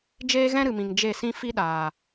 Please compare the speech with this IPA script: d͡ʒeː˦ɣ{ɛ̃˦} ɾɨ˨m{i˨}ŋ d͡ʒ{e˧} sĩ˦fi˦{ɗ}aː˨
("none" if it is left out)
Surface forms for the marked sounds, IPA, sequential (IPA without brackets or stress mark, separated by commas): ɛ̃˦, ĩ˨, e˦˨, ɗ